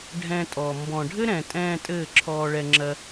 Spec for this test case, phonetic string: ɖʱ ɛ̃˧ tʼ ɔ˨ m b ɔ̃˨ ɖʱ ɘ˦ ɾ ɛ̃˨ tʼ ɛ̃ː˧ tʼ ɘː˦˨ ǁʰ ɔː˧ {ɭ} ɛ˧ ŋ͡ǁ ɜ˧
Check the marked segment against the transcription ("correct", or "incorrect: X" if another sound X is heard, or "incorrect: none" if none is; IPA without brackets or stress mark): correct